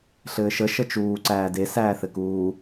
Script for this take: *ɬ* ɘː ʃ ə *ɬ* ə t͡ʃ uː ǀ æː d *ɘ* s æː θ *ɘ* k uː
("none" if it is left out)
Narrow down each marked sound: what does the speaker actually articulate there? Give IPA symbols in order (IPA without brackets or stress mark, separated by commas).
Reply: ɬ, ʃ, e, ɘ